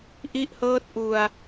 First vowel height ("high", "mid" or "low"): high